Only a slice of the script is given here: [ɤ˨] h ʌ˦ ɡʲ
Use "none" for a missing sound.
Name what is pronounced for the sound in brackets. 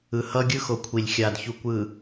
ɯ˨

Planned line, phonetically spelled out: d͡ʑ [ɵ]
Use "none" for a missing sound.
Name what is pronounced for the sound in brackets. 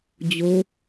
o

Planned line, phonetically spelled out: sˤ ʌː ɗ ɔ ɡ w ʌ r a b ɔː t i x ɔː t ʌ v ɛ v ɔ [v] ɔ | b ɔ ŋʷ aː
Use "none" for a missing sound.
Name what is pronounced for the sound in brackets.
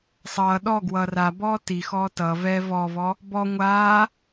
v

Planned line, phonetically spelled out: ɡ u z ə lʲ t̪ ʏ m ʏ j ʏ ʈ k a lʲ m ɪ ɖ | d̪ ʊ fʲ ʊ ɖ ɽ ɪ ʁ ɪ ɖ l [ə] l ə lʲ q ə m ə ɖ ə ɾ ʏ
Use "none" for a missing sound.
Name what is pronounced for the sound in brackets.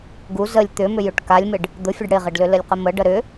ʏ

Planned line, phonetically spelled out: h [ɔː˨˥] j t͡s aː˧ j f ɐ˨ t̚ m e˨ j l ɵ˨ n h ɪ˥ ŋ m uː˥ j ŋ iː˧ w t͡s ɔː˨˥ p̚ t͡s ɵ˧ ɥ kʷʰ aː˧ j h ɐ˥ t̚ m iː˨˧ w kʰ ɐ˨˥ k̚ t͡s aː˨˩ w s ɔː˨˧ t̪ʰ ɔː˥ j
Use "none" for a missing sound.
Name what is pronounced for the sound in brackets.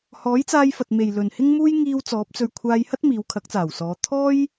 ɔː˨˥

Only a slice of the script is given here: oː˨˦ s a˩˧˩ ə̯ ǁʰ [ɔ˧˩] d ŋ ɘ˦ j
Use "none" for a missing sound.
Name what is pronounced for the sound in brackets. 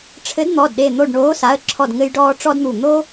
ɔ˧˩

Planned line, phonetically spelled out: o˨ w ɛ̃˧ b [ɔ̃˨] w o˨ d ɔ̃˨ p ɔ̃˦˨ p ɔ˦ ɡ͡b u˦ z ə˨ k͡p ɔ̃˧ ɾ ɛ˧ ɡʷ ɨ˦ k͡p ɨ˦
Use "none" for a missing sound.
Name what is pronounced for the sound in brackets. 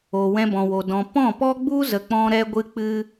ɔ̃˨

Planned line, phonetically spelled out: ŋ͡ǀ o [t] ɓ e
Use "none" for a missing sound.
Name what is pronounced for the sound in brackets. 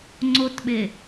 t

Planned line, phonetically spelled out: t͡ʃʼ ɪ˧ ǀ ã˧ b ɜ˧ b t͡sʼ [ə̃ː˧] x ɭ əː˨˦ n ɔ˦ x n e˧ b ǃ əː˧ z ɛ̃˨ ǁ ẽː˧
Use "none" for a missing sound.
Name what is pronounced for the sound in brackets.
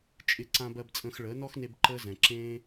ə̃ː˧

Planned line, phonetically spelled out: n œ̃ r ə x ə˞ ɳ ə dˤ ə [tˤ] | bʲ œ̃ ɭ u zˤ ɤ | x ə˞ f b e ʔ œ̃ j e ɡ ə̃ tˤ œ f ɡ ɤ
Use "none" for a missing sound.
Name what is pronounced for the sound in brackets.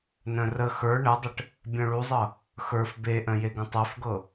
ʈ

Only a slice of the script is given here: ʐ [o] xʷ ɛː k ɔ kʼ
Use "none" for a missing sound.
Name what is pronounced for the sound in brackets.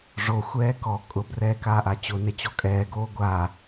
o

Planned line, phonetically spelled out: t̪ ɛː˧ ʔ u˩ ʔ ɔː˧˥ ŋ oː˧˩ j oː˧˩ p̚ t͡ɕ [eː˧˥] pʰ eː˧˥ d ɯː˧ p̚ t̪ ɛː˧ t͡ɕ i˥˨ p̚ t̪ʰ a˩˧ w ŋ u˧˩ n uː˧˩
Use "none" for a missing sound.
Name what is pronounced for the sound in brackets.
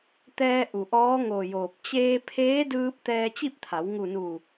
eː˧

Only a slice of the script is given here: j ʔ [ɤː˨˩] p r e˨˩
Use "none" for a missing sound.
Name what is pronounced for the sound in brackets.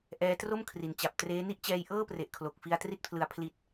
ɤː˥˩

